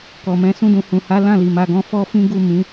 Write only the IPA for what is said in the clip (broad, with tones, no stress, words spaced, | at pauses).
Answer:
kɔ˨mɛ̃˧ sũ˧dũ˨hũ˨ha˨˦ lã˦˨li˨ ma˧ɡɔ̃˦ fɔ˦fĩ˦ ɡu˦˨ mĩ˨˦